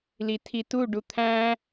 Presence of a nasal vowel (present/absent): present